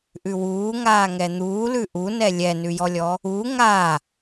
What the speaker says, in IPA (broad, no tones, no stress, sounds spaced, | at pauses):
ʔ ʉ w uː ŋ aː ŋ ɛ n̪ uː l ʉ ʔ u n ɛ lʲ ɛ n ʉ j ɔ lʲ ɔ | u ŋ a